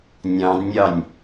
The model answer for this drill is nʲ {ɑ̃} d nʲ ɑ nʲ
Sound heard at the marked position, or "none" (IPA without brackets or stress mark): ɑ̃